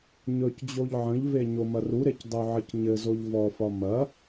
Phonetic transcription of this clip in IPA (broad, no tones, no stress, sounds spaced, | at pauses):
ɲ ɵ c d͡ʑ o ʎ ʕ ə̃ ʎ v e ɲ o m ɐ r u ɾ e c dˤ u ʕ ə c ɲ ɘ z o ʎ v ɔ f ɒ m ɐ